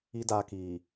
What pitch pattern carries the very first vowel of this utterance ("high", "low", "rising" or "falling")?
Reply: high